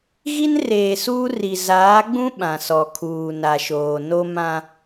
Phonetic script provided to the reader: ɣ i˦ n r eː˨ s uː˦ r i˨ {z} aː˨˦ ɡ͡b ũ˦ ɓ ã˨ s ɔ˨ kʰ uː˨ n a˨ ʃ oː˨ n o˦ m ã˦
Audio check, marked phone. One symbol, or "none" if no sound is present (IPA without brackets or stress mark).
z